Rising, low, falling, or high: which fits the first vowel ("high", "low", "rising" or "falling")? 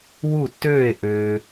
falling